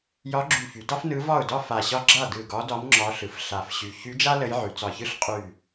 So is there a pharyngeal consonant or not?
yes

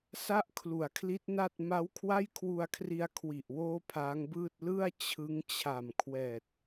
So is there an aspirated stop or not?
yes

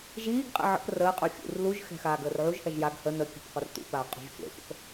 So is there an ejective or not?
yes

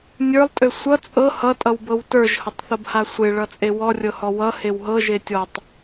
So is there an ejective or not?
yes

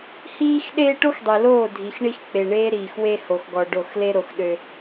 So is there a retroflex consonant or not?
yes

